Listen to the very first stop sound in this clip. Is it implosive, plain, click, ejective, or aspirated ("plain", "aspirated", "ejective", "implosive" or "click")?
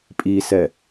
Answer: ejective